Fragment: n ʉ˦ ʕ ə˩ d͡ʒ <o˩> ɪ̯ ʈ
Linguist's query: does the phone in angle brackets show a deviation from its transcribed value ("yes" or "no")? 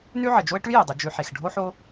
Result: yes